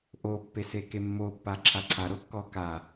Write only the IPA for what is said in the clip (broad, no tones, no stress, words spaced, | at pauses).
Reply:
ʔopːe sekemːopːa ǁʰaǀʰaɾokːɔ ka